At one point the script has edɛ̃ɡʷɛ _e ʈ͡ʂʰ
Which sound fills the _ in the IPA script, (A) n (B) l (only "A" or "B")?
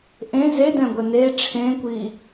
A